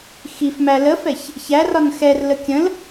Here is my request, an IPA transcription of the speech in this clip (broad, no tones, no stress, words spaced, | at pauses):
xifmæ ləfɛç | çærɒn xɛrlə kʲə̃l